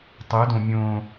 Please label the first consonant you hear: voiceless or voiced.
voiceless